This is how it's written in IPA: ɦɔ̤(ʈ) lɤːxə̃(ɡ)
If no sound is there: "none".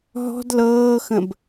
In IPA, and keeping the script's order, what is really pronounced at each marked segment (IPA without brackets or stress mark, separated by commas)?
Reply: d, b